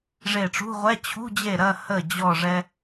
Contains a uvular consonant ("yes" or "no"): yes